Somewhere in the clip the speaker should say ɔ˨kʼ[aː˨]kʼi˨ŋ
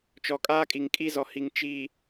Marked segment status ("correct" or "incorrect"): incorrect